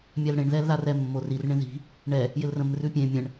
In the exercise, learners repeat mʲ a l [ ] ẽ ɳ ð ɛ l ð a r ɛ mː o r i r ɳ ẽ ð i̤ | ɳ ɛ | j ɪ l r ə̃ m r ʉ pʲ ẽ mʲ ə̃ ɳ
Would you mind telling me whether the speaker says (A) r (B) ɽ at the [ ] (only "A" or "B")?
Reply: B